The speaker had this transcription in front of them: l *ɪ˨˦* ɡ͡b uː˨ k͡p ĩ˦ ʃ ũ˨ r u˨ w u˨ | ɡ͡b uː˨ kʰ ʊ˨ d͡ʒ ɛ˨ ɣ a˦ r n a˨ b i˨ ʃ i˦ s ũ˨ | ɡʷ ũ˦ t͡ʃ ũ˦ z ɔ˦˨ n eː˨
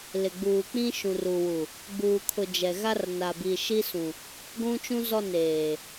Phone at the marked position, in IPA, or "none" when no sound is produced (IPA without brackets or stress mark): ɪ˨